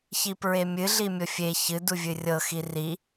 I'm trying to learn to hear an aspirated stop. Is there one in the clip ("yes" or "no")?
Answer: no